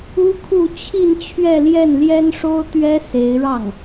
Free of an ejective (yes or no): yes